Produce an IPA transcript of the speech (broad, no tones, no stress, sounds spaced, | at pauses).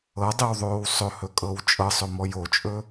ɤ dˤ i w ðˤ oː w sˤ ɵ h ɵ kʼ ɤ w t͡ʃʼ ɤ sˤ ɵ m ɔ j o t͡ʃʼ ɵ